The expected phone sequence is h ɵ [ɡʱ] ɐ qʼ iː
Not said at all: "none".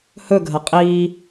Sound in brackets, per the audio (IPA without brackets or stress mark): ɡʱ